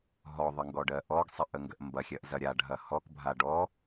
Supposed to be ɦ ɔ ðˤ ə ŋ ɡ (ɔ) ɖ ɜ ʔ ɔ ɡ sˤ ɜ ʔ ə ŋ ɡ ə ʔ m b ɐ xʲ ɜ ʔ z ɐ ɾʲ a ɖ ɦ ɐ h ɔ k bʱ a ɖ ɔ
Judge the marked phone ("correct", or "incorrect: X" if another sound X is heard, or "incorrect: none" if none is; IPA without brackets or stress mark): correct